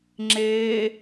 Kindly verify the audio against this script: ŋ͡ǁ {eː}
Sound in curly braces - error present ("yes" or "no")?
no